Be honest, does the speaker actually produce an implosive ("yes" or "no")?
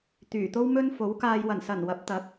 no